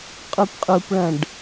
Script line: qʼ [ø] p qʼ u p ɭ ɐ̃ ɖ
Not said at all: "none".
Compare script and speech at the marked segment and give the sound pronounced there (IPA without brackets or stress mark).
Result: u